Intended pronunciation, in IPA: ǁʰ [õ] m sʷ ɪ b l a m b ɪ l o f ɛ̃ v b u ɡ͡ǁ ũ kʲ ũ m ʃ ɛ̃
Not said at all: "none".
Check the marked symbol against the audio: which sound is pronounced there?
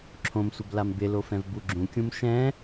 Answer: õ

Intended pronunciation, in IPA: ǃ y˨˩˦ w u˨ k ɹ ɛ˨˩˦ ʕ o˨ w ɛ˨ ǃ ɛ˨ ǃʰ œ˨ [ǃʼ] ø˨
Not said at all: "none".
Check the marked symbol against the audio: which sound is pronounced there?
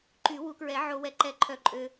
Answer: ǃʼ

